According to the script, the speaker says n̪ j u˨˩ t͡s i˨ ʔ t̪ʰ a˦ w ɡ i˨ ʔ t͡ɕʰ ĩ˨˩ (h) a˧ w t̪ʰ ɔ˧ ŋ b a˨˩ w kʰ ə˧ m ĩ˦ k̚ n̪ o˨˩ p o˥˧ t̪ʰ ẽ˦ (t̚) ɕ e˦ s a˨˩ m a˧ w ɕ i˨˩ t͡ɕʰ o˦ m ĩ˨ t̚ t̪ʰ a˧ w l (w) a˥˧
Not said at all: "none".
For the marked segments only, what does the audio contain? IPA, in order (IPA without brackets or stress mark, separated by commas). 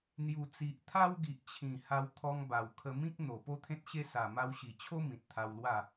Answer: h, t̚, w